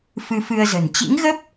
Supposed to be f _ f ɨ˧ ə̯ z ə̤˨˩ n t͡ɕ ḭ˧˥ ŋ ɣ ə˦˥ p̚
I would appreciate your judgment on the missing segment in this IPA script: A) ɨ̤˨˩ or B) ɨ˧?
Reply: B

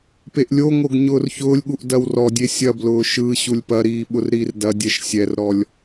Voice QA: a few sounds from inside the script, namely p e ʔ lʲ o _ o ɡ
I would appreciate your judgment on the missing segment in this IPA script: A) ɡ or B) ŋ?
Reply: B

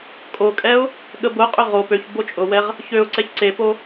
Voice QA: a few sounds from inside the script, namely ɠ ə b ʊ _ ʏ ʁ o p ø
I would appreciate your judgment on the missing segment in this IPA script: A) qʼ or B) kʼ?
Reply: A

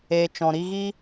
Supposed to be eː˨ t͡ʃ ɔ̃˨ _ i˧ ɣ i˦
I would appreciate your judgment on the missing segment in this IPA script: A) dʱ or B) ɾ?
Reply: B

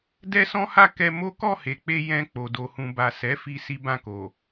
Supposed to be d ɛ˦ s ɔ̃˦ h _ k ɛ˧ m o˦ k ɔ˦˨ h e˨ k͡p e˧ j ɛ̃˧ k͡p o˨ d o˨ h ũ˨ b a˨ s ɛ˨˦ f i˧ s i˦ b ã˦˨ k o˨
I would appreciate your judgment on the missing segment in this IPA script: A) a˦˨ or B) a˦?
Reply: A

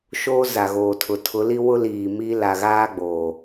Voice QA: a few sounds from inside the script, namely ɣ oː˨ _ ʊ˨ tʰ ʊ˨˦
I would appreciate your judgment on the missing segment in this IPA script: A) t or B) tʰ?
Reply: B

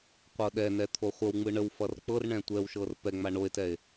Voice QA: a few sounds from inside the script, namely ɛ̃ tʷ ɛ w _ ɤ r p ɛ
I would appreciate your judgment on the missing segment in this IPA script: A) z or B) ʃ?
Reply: B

